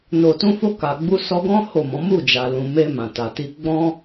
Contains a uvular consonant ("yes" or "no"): no